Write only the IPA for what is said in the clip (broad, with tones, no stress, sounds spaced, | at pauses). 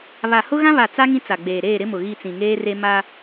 β a˨ h ʊ˦ ɣ ã˦ β a˨ t͡s a˦ ŋ ĩ˦ t͡s a˨ ɡ͡b eː˨ ɾ eː˦˨ ɾ ɪ˦ m ʊ˨ ɣ i˦˨ t͡s ĩ˨ ŋ eː˦ r e˦ m a˦